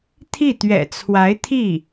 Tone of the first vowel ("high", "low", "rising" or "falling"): falling